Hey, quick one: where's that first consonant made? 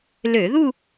tongue tip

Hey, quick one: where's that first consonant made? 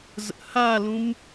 tongue tip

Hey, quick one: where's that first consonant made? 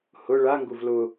throat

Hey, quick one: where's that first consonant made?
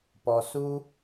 lips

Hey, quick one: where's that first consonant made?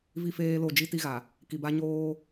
lips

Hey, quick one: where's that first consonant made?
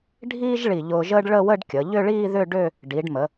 retroflex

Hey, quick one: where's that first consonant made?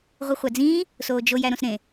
uvula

